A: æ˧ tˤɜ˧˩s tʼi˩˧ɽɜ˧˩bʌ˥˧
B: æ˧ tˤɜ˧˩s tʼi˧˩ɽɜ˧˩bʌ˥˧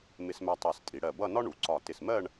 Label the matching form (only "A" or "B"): A